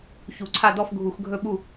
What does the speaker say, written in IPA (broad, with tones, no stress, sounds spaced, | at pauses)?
ç u˧˩˧ ǀʰ a˥˨ d ɔ˥˨ f ɡʱ u˧˩˧ x ɡʱ ɵ˥˨ ɓ u˥˨